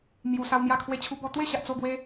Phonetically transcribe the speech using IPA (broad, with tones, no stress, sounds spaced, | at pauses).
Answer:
m j u˨˩ s a˧ w m j a˥˧ kʰ w e˥˧ t͡ɕʰ u˦ b ɔ˧ t̪ w e˥˧ ɕ a˨ ʔ t͡s o˥˧ ɡ w e˦